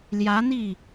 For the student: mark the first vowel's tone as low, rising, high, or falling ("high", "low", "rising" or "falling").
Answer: rising